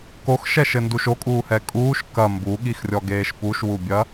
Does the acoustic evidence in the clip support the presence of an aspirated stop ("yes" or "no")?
no